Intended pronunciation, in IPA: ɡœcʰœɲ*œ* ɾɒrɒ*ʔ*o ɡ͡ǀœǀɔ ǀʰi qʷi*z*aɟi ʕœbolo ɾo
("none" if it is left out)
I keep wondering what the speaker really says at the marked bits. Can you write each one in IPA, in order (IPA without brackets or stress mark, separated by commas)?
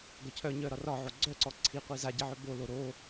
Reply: œ, ʕ, z